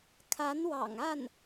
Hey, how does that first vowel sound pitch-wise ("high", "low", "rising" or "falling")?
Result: rising